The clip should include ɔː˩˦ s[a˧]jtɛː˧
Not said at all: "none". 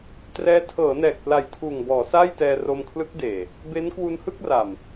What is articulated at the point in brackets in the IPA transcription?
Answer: a˥˩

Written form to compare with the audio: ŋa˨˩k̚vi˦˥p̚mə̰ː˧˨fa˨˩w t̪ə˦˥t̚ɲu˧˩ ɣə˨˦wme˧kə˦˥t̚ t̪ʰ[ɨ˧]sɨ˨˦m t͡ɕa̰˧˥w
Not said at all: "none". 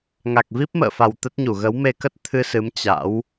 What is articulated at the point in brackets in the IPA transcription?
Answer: ɨ˧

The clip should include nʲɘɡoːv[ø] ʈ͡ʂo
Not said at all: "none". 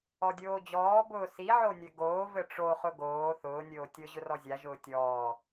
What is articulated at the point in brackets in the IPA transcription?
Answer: ɘ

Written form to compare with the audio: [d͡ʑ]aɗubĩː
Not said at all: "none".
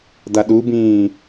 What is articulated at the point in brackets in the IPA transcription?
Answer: d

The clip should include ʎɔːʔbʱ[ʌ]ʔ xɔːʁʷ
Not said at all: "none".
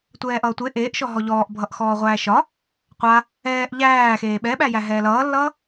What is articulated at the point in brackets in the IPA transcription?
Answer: ʌ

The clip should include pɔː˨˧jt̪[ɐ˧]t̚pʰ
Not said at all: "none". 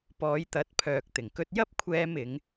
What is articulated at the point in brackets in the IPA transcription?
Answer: ɐ˨˥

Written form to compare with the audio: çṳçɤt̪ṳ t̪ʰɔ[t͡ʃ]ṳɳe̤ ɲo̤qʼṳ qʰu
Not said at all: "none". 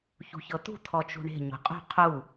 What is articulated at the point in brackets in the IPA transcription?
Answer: t͡ʃ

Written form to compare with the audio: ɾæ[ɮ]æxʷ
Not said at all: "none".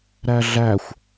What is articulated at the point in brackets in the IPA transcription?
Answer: ɮ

